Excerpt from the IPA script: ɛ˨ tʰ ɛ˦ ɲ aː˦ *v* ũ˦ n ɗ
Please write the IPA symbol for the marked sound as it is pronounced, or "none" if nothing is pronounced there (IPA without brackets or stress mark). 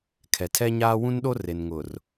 w